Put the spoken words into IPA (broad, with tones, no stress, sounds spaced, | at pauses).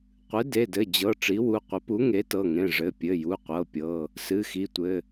qʷ ɨ˩˥ d e˩˧˩ d ɘ˩˧˩ d͡ʑ ɤ˩˧˩ ʈ͡ʂ i˩˥ w u˩˧˩ qʷ ɘ˩˥ p u˩˥ ŋ e˩˥ t ɤ˩˧˩ ŋ ẽ˩˧˩ ʐ ɘ˩˧˩ pʲ ɘ˩˧˩ j u˩˧˩ qʷ ɤ˩˧˩ pʲ ɤ˩˧˩ | s ɨ˩˧˩ x i˩˧˩ tʷ ɘ˩˧˩